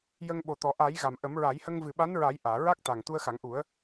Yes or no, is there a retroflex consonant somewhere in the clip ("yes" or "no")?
no